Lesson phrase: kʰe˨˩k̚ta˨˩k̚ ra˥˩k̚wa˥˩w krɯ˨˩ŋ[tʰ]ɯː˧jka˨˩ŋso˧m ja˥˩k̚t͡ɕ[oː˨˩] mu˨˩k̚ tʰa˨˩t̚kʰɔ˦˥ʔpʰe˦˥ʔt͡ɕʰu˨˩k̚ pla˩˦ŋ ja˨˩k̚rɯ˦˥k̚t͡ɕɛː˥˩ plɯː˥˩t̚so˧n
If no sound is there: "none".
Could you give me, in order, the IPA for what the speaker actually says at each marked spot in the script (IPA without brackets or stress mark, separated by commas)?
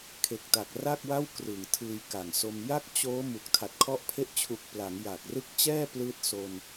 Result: tʰ, oː˦˥